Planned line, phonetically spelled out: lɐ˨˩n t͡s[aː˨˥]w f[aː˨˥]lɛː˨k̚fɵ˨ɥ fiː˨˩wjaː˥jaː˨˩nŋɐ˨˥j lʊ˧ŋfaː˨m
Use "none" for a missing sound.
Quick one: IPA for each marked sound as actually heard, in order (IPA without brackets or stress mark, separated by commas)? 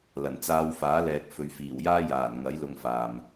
aː˨, aː˨˥